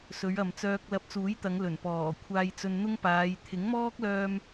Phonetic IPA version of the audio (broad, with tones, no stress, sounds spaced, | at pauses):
s ɵ˨˧ ɥ ɐ˨ m t͡s œː˧ k̚ l ɐ˧ p̚ t͡s uː˨˥ j t̪ ɐ˨˧ ŋ l ɵ˨˩ n p ɔː˨˩ kʷʰ aː˧ j t͡s ɵ˧ n n̪ ʊ˥ ŋ p aː˨˧ j t̪ʰ ɪ˨˥ ŋ m ɔː˥ k̚ l œː˧ m